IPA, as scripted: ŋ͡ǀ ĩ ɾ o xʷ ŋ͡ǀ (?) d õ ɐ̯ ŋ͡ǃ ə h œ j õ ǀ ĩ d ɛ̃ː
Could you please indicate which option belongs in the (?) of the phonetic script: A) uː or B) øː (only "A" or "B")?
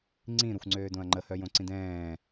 B